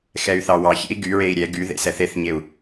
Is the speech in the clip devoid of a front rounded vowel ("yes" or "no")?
no